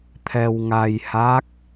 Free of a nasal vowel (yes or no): yes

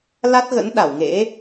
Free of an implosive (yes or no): no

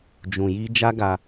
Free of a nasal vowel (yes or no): no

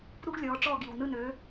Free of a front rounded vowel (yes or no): no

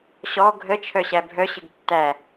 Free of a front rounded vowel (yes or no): no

